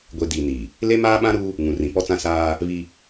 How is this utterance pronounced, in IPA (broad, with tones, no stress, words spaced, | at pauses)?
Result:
ɡʷe˨ diː˨niː˨ | le˦maː˦ɓã˦ɾuː˦ | ŋũ˨rĩ˨pɔ˦t͡sã˦ saː˦ | βi˦